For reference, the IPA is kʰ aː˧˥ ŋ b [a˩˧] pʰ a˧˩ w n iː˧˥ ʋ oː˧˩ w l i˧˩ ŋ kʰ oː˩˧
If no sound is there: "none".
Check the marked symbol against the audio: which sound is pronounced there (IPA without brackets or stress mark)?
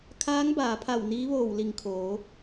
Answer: aː˩˧